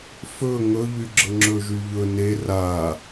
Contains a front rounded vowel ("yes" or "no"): yes